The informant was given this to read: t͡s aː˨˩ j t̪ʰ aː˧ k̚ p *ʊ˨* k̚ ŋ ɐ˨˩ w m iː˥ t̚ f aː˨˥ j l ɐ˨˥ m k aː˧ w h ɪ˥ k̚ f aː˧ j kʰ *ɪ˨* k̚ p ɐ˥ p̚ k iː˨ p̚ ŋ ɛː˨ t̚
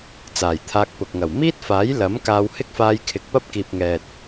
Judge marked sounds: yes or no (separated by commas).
yes, yes